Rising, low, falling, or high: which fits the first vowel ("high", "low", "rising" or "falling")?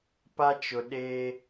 high